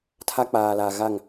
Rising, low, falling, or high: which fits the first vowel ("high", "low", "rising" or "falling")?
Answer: high